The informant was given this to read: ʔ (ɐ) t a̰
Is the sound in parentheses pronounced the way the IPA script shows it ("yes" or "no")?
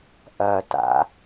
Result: yes